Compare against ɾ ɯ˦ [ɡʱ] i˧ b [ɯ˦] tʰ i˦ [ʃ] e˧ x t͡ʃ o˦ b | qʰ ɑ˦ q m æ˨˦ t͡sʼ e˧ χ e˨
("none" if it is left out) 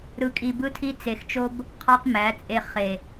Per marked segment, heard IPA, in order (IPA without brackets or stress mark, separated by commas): kʼ, ɯ˦, t͡s